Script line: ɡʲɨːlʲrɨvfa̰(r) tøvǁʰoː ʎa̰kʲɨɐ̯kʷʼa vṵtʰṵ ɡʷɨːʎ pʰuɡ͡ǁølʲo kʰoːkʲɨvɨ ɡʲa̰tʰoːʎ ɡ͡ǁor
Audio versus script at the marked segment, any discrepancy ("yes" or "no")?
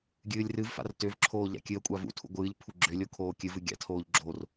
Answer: no